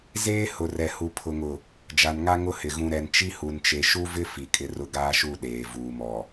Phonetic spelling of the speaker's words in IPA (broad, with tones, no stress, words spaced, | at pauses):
zeː˦hʊ˨rɛ˨ hu˨pʰʊ˨ŋʊ˨ | d͡ʒa˨nŋa˦ ŋʊ˦hɪ˨ ɣũ˨ɾɛ˨n t͡ʃi˦hu˨nt͡ʃe˨ ʃu˦vɪ˦ fi˨kʼɪ˦ rʊ˦ ɡaː˦ʃu˦˨ ɗeː˨ vuː˨mɔ˨